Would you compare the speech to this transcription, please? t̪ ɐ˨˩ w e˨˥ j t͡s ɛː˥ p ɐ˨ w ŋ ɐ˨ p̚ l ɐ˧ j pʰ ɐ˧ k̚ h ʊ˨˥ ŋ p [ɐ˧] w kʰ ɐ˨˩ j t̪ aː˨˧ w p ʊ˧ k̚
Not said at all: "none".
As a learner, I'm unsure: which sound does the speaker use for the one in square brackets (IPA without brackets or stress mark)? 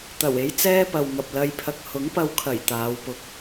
ɐ˧